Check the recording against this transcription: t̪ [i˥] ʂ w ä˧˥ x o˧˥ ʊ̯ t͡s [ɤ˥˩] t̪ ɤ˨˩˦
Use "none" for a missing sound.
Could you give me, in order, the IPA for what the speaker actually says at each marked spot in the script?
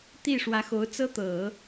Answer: i˥˩, ɤ˥

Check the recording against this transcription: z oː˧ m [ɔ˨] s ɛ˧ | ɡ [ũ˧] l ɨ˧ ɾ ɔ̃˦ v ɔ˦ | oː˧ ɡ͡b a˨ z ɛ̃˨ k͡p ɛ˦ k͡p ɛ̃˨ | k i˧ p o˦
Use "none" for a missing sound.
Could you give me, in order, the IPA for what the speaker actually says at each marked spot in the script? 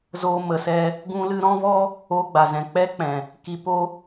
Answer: ə˨, ũ˧

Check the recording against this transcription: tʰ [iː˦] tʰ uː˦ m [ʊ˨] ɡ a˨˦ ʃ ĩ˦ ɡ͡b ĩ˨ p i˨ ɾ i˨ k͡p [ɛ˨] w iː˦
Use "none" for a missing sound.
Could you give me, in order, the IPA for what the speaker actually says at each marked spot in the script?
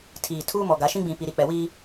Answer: iː˨, ɔ˨, ɛ˨

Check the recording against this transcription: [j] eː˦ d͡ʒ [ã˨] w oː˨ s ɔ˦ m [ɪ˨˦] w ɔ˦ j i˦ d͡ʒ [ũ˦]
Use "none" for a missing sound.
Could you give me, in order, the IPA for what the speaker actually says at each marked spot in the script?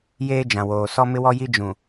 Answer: j, ã˨, ɪ˦, ũ˨

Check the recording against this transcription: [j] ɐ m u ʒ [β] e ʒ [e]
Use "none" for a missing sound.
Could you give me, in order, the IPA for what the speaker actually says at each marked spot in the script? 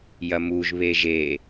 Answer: j, β, e

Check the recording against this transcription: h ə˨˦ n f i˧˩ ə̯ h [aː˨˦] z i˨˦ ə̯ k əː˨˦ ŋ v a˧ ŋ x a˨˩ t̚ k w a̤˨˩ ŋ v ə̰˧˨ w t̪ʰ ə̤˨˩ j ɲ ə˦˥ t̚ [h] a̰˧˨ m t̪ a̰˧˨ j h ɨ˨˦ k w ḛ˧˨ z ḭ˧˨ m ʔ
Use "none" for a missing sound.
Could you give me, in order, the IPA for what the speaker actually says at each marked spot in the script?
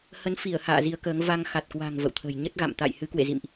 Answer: a̰ː˧˨, ɣ

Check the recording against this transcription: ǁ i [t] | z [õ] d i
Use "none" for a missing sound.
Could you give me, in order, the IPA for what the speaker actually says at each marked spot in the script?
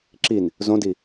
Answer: n, õ

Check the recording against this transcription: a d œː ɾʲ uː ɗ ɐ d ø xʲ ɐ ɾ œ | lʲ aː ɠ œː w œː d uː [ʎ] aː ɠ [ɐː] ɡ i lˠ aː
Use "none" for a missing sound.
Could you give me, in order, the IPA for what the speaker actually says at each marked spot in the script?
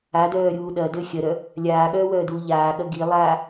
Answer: ʎ, ɐ

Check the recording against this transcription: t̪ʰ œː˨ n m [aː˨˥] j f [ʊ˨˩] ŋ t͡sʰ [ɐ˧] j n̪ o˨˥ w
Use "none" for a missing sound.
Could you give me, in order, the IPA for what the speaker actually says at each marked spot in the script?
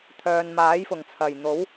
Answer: aː˨˥, ʊ˨˩, ɐ˨˩

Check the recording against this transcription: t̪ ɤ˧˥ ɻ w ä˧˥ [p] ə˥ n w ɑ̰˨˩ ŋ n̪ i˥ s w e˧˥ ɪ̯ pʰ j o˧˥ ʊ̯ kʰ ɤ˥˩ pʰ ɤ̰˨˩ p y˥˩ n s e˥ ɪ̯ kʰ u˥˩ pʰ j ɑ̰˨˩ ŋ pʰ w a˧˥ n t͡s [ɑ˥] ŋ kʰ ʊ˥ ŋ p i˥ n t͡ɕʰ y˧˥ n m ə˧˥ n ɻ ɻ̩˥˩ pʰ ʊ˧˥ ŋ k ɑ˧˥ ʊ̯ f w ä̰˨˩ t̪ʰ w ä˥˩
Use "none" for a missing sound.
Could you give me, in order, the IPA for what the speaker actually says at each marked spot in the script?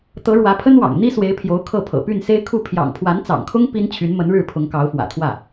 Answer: pʰ, ɑ̰˨˩

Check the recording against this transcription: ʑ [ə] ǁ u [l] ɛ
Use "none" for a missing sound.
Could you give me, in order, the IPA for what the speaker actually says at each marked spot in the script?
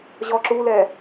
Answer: ɔ, l

